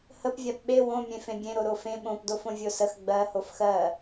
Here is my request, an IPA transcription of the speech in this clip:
h ə p vʲ a p ɓ e w õ mʲ ẽ f ẽ bʲ ẽ ɾ o ɾ o f ẽ ɓ õ p d o f õ vʲ o s ə x ɡ͡b ɜ h o f x ɜ

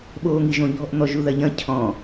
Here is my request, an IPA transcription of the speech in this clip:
ɓ oː ŋ i ʒ õ ʎ ɔ̤ ʔ n̪ ɔ ʒ u ð ɐ ʎ ɐ̃ cʰ ɔ̃

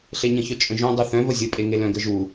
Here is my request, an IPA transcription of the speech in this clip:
ɬ e ɲ ə̃ ç œ t͡ʃʼ ə̃ ʒ õ dˤ u θ œ̃ v ə zʲ ə pʼ e ŋ e l œ̃ ɡ ə ʒ u

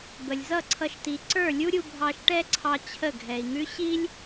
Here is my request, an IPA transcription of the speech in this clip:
b ə˨ lʲ z ʌ˦˨ ǀʰ ʌ˧ ʃ t̪ i˨ ǀ ə˞˦˨ lʲ u˦ ɾʲ u˧ bʱ ɑ˧ ʃ ʈ ɛ˦ ǀʰ ɑ˧ t͡ɕʰ ə˦˨ ɡʱ ɛ˨ i̯ ŋ ʉ˦ ɕ i˦ lʲ

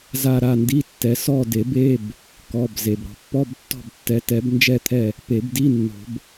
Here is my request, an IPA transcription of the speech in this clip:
z a˦˨ ɾ a˦˨ n d i˧˥˧ tː ɛ˨˦ s ɔ˦˨ d e˨˩˦ b e˧˥˧ b | k ɔ˩˧˩ b z e˩ b ɾ ɔ̤˩ pː ɔ˧˥˧ b tː ɔ̤˦˨ b tː ɛ˨˦ t ɛ˨˦ b n d͡ʒ ɛ˦˨ t̪ʰ ɛ˦˨ | p e˨˩˦ b d i˧˥˧ nː o̤˨˩˦ b

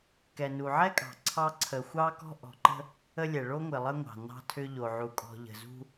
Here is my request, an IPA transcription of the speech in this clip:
k ɛ˨ n u˨ ʕ ɛ˦ kʼ ɑ̤˨ ǀʰ ɑ˦ ǀʰ ə˨ xʷ ɑ˦ k ɔ̤˦ ʔ ɔ̤˨ ǃ ə̤˦ | ə˦ lʲ ɛ˨ ɭ o˦ ŋʷ ɪ˨ lˠ ə˦ ŋʷ ɑ̤˨ n ɑ̤˦ tʰ ʏ˦ ʎ o˨ ʕ u˨ kʼ ɔ̤˨ ʎ ə̤˨ z ṳ˦

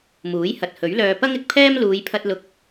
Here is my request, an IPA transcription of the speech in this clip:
m uː˨˥ j h ɐ˨ t̚ h ɵ˨˥ ɥ l œː˧ p ɐ˥ ŋ ɪ˨ k̚ pʰ ɛː˥ m l uː˨˧ j pʰ ɐ˧ t̚ l ʊ˨˥ k̚

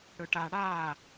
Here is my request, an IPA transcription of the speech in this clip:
ɽ ɵ ʈ a ɽ aː

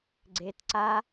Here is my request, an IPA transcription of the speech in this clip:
ɡ͡ǀ e t ǀ a

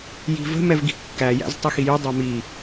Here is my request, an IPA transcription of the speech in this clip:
j i̤ v ə̤ m ɛ v ɡ i̤ kː æ j æ̰ z tˤ i x i j y dˤ æ m i

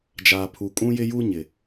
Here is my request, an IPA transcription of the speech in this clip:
d͡ʒ aː˨ pʰ u˨ kʼ ũ˦ j ɪ˦ j u˦ ɲ ɪ˨

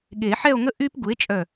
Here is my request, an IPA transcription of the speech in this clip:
ɠ e˨˩˦ ħ ɛ˥˧ o̯ ŋ ə˥ ʔ y˥ p ɡ u˩˥ e̯ t͡ʃʼ œ˧˩

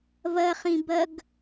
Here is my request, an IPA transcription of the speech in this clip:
v ɐ χ ĩ b ɐ ɡ

